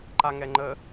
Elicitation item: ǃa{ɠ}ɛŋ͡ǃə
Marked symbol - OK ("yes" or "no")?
no